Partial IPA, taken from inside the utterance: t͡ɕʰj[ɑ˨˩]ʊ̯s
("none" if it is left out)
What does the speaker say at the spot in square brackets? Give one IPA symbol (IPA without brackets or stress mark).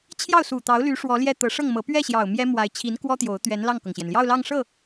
ɑ˥˩